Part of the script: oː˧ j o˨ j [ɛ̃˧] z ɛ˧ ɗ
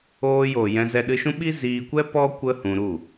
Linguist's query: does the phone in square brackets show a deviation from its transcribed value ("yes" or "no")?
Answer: no